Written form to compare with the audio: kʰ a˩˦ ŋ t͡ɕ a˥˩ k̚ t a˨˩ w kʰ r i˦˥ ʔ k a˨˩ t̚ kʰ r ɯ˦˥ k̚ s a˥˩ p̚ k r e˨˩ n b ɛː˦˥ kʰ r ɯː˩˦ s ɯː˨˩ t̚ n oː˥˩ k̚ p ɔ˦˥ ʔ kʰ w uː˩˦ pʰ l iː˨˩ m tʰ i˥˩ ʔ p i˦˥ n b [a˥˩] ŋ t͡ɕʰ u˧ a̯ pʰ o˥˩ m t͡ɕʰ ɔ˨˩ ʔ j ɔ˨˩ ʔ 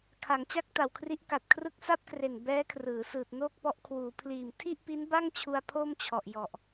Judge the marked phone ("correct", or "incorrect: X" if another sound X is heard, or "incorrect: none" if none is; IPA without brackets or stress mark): correct